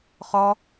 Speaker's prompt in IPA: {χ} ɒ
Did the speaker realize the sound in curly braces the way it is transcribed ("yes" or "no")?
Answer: yes